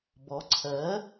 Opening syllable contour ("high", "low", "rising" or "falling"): rising